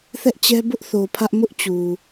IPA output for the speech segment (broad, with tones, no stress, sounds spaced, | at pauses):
θ ɛ˦ ʔ t͡ɕ ɛ˦ b ʊ˦ ʔ θ o˨ pʰ ä˦ ʔ m ʊ˦ ʔ t͡ɕ u˨